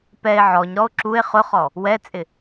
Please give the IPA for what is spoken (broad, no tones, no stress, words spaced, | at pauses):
pɛe̯ ʕɔɲɾɔo̯ ǁue̯ χʊχɔ | wɛt͡sʼɪ